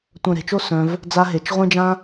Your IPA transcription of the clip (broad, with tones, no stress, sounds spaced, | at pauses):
tʷ œ̃˨ ɾ e̤˨ t͡ʃ o˦ s œ̃˧ v | d͡z a˧ ɦ e˨ t͡ʃ ʁʷ ẽ˦ d͡ʒ ã˦